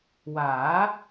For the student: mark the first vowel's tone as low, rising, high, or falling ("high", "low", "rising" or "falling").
rising